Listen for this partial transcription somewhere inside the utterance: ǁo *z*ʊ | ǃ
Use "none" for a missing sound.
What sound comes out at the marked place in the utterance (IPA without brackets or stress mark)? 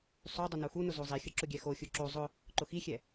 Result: zˤ